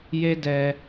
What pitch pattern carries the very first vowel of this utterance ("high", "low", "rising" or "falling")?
high